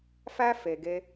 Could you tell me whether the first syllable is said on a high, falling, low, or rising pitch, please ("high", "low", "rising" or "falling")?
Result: high